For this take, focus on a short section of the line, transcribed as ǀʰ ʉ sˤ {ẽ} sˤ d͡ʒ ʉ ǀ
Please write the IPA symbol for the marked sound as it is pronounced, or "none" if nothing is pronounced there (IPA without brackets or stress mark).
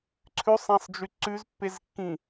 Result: ẽ